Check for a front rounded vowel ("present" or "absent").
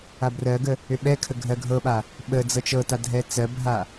present